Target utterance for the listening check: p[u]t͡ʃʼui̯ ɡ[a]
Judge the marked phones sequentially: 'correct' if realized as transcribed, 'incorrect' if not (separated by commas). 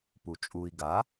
correct, correct